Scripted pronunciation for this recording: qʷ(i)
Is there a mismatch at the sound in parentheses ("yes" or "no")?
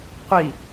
no